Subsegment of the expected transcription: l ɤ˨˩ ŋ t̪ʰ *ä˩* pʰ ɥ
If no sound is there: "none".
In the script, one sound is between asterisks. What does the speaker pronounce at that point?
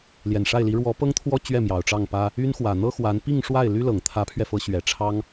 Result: ä˧˥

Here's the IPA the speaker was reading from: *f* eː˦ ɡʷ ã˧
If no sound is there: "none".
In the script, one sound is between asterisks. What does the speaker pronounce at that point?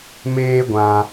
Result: m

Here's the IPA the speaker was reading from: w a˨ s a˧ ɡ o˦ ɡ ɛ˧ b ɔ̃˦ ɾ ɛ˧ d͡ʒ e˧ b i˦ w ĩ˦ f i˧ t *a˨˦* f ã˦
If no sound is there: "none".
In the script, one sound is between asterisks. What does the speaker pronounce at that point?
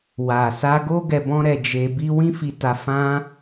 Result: a˧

